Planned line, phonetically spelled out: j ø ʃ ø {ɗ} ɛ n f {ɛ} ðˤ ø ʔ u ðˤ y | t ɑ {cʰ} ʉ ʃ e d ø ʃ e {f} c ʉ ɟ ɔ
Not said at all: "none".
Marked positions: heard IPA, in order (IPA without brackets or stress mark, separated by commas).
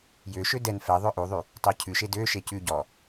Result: d, ɛ, cʰ, none